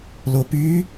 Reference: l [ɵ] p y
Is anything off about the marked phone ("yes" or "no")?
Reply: yes